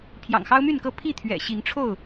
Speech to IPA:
pʰ j ɑ̰˨˩ ŋ x ɑ˦ ʊ̯ m y˥˨ n k ɤ˥˨ pʰ i˥˨ t̪ʰ ɥ ɛ̰˨˩ ɕ i˨˦ ŋ ʈ͡ʂʰ o˥˨ ʊ̯

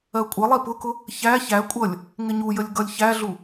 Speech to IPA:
ɜ kʷʼ ə lˠ i p ʊ k ʊ | ç æ ç æ kʷʼ ʌ lʲ | ŋ ɪ ɲ u j ə lʲ ɡ ʌ lʲ ç æ ɮ u

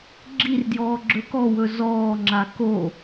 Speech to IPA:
ɡ͡ǁ i r d j ɔː ɡ͡ǁ ɵ k ɔ w ɵ z ɔː ŋ͡ǁ a k o

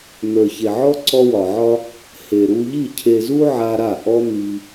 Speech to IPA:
n̪ ə˞˨ ç e˨ ʕ ɔ˦ ǀ ɔ˧ w ɒ˨ ʕ ɒ˧ | h e˨ ɾ u˧ ʎ i˦˨ cʰ e˨ z u˧ ʕ a˧ ɾ a˦˨ ʔ ɔ˦ n̪ i˧

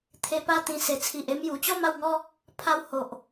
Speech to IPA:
t̪ʰ e˧ p a˥˧ t̪ ĩ˧ s e˨˩ t͡sʰ i˨ ʔ e˧ m j u˨˩ t͡ɕ ɔ˥˧ m a˥˧ w ŋ ɔ˦ | pʰ a˦ w h o˨ ʔ

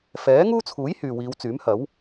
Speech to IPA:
f ɛː˨˥ ŋ uː˥ t͡sʰ uː˨˥ j h yː˨ w iː˨˧ w t͡s yː˨˥ m h ɐ˨˥ w

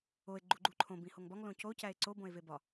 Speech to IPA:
o e̯ ɡ͡ǃ u ɡ͡ǃ u ǃʰ õ b ĩ h o ŋ b ɒ ŋ l õ c o c æ e̯ ǀ o b õ e̯ v e b ɒ

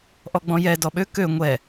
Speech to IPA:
ʔ ɔ ɡ͡b ɔ̃ j ɛ d ɔ ɓ ø k ø ŋʷ ɛ

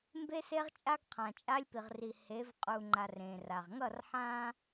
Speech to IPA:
m b e˦ s e˦ ʁ t͡ʃʼ a˦ ɡ qʰ ã˨ t͡ʃʼ a˦ lʲ p i˨ ʁ r i˨ h e˨˦ v qʼ u˨ ŋ͡ǃ a˨ r ẽ˨ r a˨ ʁ ŋ ʌ˦˨ r ħ ã˦

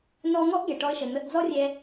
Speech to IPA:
n ɔ˧ ŋ ɔ˥ ʔ ɡ ɛ˩ ʈ ɔ˧ ə̯ ʃ ə˩ n̪ ə˧ ʔ d͡z ɔ˥ rʲ ɛ˧

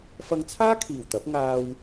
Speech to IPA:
f ɐ˧ ŋ t͡sʰ aː˥ kʰ iː˨˩ w t̪ ɐ˨˥ p̚ ŋ aː˧ w

